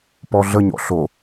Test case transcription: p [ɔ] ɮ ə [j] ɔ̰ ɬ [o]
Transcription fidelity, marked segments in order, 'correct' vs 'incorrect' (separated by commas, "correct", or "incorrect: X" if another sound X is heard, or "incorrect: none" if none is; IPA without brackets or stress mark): correct, incorrect: ɲ, correct